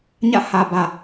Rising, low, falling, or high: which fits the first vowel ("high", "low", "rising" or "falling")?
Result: falling